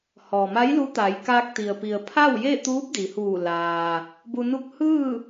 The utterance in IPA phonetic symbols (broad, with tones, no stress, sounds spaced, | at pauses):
h ɔː˩ m a˧˥ j l u˧˥ t̪ a˩˧ j k aː˧ k̚ t̪ i˩ ə̯ p i˩ ə̯ pʰ a˥˨ w j e˥˨ t̪ uː˧˥ p̚ d i˩˧ h uː˧˩ l aː˩ | b u˧ n u˥˨ k̚ h ɯː˥˨